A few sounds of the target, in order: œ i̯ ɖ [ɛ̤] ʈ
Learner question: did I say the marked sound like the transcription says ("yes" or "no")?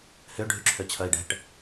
yes